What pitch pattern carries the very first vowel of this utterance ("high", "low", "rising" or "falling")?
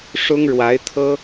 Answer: high